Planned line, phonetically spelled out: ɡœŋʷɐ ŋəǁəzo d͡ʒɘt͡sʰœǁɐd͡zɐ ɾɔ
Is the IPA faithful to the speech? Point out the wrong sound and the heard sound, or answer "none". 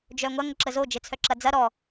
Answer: ɡ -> d͡ʒ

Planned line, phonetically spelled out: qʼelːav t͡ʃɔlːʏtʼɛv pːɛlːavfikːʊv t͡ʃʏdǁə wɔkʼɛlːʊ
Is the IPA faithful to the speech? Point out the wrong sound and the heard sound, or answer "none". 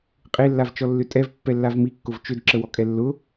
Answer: f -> m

